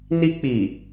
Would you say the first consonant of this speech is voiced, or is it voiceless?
voiced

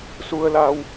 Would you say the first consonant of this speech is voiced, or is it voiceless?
voiceless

